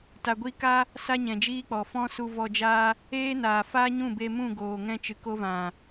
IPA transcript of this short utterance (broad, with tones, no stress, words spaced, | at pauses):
ta˨ɡʷi˧ka˦ | sa˦ɲɛ̃˨d͡ʒiː˦k͡pɔ˨ fɔ̃˦su˧vɔ˧d͡ʒaː˦ | eː˦naː˨ faː˦ɲũ˦˨be˧ mũ˦˨ɡoː˨ ŋɛ̃˧t͡ʃɨ˨ko˧vã˨